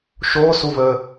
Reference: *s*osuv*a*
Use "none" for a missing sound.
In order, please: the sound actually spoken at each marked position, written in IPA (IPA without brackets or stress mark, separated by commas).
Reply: ʃ, ə